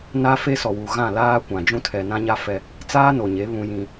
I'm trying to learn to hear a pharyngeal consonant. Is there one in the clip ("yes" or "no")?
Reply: no